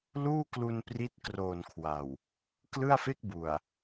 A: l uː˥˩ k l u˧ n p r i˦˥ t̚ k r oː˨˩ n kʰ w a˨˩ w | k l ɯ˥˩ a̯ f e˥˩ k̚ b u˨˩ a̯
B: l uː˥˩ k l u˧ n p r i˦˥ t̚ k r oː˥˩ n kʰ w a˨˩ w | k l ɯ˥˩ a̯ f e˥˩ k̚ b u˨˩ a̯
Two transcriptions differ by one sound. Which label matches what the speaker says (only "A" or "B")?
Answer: A